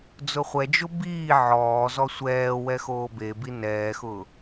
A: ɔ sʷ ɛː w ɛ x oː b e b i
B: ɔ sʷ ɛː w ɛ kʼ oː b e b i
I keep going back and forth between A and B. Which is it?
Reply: A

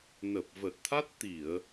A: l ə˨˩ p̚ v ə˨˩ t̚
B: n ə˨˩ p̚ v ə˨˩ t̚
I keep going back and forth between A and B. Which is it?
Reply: B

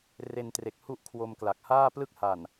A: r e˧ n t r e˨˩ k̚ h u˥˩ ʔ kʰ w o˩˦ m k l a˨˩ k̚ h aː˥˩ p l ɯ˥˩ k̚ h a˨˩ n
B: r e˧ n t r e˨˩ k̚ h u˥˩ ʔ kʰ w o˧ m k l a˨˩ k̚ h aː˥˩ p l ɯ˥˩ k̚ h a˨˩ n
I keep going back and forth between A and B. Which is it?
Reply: B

